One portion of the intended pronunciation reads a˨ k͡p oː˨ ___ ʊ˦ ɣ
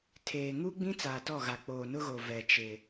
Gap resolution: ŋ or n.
n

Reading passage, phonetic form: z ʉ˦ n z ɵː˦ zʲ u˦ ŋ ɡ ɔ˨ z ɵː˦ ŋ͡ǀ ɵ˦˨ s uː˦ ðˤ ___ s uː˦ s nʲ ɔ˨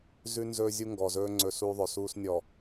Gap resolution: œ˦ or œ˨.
œ˨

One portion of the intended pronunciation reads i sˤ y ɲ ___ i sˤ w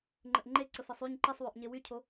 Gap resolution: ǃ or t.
ǃ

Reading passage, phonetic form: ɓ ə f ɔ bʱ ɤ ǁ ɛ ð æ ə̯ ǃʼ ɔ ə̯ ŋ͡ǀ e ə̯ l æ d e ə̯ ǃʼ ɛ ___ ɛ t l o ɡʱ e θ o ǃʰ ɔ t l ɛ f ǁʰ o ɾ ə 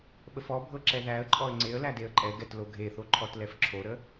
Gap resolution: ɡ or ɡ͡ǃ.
ɡ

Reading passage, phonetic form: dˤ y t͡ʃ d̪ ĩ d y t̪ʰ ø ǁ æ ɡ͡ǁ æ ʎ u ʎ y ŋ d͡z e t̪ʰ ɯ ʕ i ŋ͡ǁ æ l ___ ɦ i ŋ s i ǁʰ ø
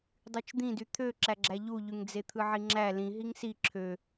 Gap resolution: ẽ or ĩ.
ĩ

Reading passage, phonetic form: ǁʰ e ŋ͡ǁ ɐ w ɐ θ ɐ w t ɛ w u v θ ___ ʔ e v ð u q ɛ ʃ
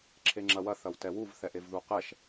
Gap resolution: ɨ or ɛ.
ɛ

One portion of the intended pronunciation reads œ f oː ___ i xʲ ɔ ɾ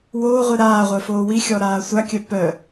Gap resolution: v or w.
w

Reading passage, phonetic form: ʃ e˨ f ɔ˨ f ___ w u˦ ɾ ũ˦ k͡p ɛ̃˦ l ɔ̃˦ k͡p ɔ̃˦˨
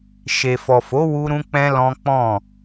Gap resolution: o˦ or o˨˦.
o˨˦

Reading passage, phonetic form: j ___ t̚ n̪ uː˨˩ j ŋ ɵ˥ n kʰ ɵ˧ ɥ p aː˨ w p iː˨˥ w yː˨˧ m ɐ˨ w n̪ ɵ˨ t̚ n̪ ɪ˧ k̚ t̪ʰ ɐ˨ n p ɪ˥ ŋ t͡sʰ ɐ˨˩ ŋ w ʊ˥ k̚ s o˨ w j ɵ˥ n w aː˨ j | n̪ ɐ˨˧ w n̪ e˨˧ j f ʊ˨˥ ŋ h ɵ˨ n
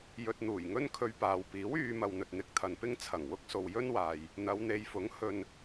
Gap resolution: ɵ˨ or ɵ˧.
ɵ˨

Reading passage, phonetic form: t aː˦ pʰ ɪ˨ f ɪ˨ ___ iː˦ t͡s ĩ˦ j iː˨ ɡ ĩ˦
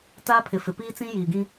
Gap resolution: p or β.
p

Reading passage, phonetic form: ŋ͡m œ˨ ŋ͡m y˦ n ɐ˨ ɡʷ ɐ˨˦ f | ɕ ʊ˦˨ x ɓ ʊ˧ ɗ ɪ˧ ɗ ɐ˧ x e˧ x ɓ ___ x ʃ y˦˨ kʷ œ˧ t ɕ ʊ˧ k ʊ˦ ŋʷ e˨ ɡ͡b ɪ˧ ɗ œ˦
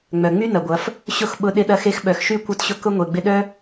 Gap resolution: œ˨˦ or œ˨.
œ˨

